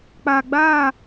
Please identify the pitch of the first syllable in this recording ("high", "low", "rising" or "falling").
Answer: low